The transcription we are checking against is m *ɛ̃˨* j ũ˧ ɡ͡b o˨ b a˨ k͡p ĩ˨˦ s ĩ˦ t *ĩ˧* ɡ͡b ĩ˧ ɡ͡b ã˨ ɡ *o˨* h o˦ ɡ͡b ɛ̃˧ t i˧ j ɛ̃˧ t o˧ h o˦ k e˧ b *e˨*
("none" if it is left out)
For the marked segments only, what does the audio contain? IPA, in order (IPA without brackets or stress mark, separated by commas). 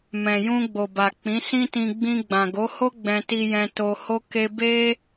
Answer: ɛ̃˨, ĩ˧, o˨˦, e˦